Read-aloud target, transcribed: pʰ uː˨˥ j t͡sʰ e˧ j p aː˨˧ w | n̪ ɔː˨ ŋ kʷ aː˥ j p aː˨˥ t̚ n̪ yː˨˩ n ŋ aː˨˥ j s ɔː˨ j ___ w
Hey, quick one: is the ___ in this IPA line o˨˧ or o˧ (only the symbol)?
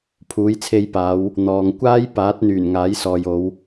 o˨˧